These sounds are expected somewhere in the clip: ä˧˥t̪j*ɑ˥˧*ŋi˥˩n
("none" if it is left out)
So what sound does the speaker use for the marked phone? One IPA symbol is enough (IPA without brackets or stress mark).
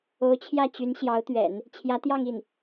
ɑ˥˧